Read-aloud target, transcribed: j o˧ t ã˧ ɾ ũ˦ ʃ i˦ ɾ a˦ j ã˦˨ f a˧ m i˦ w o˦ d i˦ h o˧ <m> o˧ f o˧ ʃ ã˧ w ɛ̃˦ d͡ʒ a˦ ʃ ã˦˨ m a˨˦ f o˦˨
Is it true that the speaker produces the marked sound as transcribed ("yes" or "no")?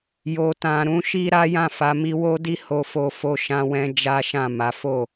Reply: no